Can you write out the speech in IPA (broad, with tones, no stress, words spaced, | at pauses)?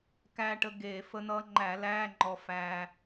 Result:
kæ˧ʈə˧ ɡe˧˩˧ fə˧n̪ʌ˧ŋ͡ǃæ˧˩˧læ˧˥˧ ŋ͡ǃɔ˧fæ˧